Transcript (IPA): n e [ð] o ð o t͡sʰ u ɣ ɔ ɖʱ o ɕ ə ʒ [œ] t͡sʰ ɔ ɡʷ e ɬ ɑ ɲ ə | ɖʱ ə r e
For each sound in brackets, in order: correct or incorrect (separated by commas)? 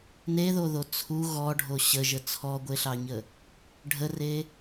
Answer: correct, incorrect